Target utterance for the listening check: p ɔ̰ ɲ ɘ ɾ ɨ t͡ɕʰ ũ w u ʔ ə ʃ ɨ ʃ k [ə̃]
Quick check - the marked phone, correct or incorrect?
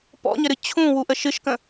correct